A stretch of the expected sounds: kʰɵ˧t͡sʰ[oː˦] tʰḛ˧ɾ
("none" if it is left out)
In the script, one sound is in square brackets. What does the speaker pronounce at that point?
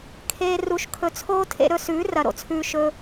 oː˦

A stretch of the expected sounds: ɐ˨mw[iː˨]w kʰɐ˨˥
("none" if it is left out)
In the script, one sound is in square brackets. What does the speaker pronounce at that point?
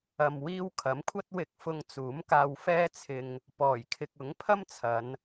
iː˧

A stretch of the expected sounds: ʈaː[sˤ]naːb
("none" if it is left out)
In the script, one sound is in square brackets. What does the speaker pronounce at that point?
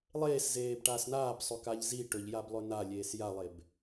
s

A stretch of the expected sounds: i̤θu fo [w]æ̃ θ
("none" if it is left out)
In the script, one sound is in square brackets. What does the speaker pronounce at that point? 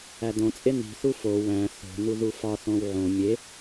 w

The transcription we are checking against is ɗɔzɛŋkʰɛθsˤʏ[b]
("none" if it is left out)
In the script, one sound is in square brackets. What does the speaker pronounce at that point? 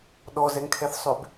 b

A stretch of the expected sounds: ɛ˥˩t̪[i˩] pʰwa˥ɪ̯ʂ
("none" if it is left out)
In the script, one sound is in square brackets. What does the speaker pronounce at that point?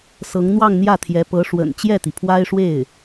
i˩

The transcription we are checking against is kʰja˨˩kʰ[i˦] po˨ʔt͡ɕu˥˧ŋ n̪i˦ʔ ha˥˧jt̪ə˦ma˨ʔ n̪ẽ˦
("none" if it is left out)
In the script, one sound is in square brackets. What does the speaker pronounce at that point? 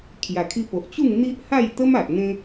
i˧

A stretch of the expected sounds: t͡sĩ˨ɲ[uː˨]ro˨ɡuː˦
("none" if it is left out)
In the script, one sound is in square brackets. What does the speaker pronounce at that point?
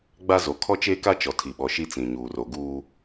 uː˨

